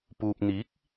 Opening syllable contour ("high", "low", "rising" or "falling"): low